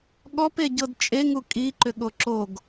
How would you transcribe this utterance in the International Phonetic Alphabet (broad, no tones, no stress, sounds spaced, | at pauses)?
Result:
ɠ ɔ p e ɟ ɤ d t͡ʃʼ e ŋ u kʼ i ǃ ʏ ɠ o ǁ o ɡ